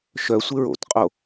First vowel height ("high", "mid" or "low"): mid